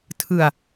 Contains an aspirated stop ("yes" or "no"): yes